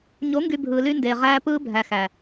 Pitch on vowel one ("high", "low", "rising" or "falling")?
rising